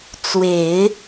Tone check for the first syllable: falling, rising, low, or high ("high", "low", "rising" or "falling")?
low